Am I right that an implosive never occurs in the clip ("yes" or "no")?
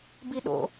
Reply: no